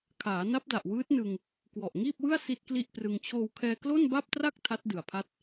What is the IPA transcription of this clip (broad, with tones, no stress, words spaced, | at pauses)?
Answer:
kʰaː˩˦na˦˥p̚da˨˩ʔ wɯː˦˥t̚nɯ˧ŋ | kwɔ˨˩ʔŋiː˥˩p̚wɯ˥˩a̯ si˥˩t̚kli˥˩ʔprɯ˧ŋ t͡ɕʰoː˧wkʰɛː˧ klo˥˩nba˥˩p̚tra˥˩k̚ tʰa˦˥t̚dɯ˨˩a̯pʰa˦˥t̚